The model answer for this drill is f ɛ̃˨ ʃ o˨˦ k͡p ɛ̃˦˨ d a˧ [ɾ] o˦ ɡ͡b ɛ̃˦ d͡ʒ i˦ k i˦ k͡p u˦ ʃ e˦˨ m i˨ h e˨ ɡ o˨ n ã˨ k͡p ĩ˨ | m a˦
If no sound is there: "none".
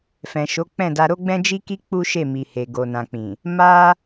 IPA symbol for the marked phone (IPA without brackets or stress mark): ɾ